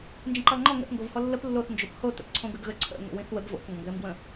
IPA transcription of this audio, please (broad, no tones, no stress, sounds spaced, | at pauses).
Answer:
n d͡ʒ ə̃ ǃ ɘ lˠ ŋ͡ǃ ɔ ŋ ə̰ θ ŋ ɡ o v h ɔ lː ə p lː o θ n d͡ʒ o p h o t ə̰ p ǀʰ õ ɡ ə ɡ ɣ ə ǀʰ ə̰ ŋ o̰ w ĩ θ w ə ɡ v o̰ θ ŋ ɡ ɔ̃ ɡ ð ɘ m ɡ w ə̃